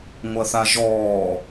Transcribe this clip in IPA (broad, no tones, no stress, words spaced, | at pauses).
ŋʷɐθaʒɔː